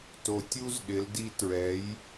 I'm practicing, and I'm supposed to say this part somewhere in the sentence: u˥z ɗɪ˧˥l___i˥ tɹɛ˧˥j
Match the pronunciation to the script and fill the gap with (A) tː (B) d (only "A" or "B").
B